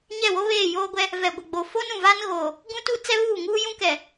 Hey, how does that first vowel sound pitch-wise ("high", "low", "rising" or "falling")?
falling